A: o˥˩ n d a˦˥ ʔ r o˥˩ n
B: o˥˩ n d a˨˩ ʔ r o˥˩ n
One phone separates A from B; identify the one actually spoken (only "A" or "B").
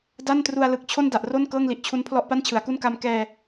B